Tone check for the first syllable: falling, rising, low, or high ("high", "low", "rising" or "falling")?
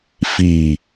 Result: low